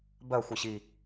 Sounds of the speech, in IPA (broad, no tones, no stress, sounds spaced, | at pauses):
b ɜ xʷ i ɕ i